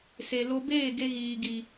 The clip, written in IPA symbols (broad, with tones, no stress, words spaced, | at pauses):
se˨lo˧beː˦˨ ɡe˧ɣiː˨ɡi˨